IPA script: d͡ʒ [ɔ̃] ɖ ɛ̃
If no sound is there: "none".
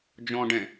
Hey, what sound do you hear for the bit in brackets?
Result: ɔ̃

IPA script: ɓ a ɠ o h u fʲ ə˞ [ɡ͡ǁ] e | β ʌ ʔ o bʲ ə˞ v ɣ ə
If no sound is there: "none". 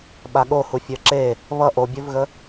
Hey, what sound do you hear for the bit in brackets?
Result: ǁ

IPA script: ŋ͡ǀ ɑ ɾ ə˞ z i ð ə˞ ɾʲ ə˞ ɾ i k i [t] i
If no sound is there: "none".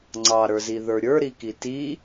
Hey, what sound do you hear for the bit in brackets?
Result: t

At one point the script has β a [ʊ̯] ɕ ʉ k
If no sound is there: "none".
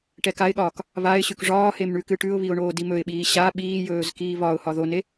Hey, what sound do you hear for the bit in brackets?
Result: ɪ̯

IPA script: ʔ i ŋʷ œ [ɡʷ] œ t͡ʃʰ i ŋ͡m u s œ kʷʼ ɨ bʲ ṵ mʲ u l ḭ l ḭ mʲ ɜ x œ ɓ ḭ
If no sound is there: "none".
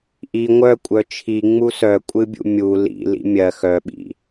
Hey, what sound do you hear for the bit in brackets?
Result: kʷʼ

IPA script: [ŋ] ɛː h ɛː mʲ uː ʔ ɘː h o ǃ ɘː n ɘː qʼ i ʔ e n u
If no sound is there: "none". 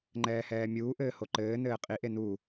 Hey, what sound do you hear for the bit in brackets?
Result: ŋ͡ǃ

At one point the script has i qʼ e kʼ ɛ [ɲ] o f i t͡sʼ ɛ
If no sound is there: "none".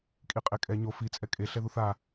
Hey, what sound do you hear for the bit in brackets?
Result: ɲ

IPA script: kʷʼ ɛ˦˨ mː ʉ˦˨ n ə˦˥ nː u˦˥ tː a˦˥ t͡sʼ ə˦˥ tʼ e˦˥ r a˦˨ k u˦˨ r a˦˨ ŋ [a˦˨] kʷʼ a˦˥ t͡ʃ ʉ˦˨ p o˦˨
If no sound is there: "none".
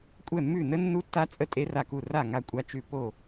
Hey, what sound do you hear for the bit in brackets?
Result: a˦˨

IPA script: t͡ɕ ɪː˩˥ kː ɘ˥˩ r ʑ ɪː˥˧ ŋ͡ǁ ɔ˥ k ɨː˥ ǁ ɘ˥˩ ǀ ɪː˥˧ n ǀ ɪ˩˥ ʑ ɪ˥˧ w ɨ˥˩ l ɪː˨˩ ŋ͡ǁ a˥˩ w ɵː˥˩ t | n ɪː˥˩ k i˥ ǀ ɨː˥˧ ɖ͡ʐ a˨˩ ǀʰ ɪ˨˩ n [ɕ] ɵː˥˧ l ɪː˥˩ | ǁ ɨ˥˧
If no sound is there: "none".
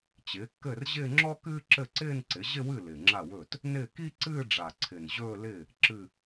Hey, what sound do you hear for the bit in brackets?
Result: ʑ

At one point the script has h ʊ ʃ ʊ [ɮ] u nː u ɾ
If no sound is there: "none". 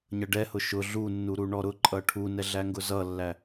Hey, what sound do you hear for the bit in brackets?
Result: ɮ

